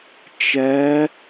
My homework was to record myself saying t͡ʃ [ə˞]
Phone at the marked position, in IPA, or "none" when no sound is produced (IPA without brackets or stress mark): ɜ